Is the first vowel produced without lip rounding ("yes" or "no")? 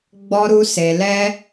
no